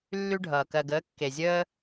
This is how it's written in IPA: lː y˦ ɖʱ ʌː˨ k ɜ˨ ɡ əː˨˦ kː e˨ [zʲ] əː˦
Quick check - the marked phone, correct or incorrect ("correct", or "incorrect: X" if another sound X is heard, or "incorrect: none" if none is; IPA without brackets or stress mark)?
correct